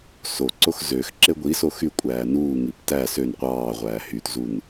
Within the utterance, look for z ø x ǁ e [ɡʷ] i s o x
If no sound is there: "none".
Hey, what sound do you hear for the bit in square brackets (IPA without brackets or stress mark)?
ɡʷ